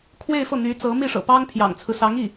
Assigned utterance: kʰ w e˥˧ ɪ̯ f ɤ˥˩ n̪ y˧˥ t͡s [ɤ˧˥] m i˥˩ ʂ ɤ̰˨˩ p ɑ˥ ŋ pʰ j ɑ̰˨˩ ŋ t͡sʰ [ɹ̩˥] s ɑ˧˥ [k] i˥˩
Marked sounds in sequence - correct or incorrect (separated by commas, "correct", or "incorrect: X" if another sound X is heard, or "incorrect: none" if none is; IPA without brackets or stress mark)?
correct, incorrect: ɹ̩˦, incorrect: ŋ